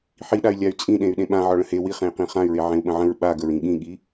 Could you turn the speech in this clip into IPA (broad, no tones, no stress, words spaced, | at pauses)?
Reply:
ħiɗay̯ lʲay̯t͡sʼĩɗẽy̯ ɗẽɓãʕɒ ɭə̃he wiχẽi̯qĩ χãy̯ɹe ʕẽu̯ɓə̃ʕə̃ɹ ɓaɡəɹĩ ɠĩɠi